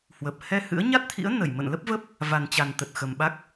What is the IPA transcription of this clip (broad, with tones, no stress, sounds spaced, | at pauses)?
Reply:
h w ə˨˩ p̚ h ɛ˧ h ɨ̰˧˥ ə̯ ɲ a˦˥ t̚ t̪ʰ ḭ˧˥ ə̯ n ə˧˩ j m ə̰˧˨ n l ə˦˥ p̚ v ə˦˥ p̚ | v a˨˩ n t͡ɕ a˨˩ n t̪ ə˨˩ t̚ x ə˨˩ m ɓ a˦˥ k̚